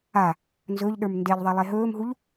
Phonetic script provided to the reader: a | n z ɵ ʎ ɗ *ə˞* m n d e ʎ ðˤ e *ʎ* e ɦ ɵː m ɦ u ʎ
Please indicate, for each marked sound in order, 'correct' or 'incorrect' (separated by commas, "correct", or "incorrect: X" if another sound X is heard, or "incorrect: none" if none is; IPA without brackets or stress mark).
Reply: correct, incorrect: lˠ